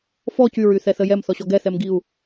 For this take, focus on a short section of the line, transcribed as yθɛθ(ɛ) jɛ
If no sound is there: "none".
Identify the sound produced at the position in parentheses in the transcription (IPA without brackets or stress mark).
ə